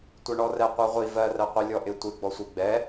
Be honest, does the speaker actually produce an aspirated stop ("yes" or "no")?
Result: no